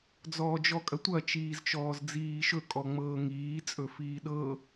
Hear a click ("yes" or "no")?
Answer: no